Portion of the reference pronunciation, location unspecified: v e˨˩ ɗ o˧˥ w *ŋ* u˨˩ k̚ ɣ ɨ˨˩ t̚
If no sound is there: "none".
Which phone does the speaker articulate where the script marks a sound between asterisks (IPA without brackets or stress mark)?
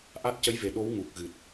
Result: ŋ